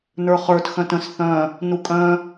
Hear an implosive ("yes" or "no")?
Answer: no